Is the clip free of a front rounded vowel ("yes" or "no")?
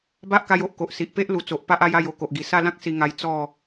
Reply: yes